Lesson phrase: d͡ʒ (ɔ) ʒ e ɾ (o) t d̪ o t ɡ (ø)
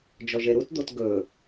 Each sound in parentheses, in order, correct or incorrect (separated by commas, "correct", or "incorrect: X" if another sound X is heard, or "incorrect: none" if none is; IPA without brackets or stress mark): correct, incorrect: u, incorrect: ɵ